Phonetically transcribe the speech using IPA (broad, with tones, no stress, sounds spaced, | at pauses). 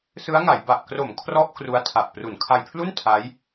s ɯ˦˥ a̯ ŋ a˩˦ j b a˨˩ ʔ k r o˩˦ m kʰ r ɔ˥˩ ʔ k r u˦˥ a̯ tʰ a˨˩ ʔ p r u˩˦ n kʰ a˧ j pʰ l u˥˩ n tʰ a˦˥ j